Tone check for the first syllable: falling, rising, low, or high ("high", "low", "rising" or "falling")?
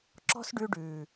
high